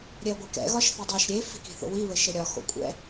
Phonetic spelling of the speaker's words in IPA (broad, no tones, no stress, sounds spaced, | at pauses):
ɾʲ ɛ ɐ̯ ɡʷ e k ɛ̰ ɣ ɒ ʃ θ i dˤ i ʃ ɾʲ e f i̤ k i̤ θ o̰ w i β ɘ ʃ ɘ ɾʲ ɒ x o̰ kʷʼ ɛ̰